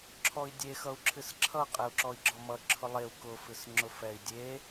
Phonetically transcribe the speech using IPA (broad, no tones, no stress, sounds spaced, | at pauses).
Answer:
ǁʰ ɔ i̯ dʲ e x ʌ u̯ ǁʰ ɨ s ǁʰ ʌ qʼ e u̯ ǁ ɔ i̯ ɡ͡ǁ ɔ m ʌ ǁʰ ʊ lˠ e u̯ k ʊ f ɨ s ŋ͡ǁ ʊ f ɛ i̯ dʲ e